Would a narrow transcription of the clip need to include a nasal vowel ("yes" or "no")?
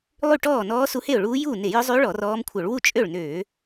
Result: no